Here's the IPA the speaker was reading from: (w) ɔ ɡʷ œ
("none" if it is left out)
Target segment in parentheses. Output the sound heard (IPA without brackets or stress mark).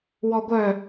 w